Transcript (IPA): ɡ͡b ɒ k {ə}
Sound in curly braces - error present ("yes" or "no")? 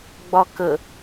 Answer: no